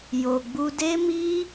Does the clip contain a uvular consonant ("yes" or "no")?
no